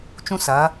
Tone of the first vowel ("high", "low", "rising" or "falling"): high